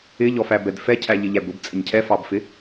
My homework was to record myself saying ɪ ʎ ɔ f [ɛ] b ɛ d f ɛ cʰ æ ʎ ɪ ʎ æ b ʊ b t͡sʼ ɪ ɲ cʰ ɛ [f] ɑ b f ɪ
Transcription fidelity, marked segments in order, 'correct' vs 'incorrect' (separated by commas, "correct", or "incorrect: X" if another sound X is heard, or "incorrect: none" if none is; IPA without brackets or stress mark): incorrect: æ, correct